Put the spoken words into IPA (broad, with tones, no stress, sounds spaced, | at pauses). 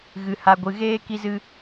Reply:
ɣ ɨ˨ h a˨ ɡʷ ɨ˨ ɣ eː˦ k i˦ z ɨ˦